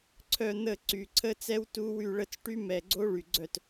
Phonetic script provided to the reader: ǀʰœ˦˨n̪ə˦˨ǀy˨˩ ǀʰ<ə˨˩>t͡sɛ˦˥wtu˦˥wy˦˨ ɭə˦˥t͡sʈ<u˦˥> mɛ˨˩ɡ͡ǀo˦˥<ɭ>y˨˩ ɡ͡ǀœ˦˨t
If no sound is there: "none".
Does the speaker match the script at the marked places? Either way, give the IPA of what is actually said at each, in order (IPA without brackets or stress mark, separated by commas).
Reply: ə˦˥, y˦˥, ɭ